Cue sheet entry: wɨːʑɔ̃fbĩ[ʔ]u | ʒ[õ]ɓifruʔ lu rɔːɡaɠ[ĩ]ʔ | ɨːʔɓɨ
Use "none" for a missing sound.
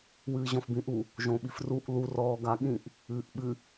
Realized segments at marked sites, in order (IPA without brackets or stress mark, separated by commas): ʔ, õ, ĩ